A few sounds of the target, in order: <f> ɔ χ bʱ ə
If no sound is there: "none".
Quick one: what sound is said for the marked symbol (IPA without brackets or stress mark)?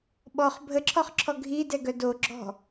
ɓ